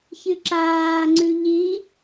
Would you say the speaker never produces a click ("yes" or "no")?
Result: no